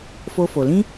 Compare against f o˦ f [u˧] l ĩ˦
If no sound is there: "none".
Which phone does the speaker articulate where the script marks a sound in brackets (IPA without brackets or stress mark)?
o˧